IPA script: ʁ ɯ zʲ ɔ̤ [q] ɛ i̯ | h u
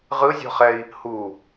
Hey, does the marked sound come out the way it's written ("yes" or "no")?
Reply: no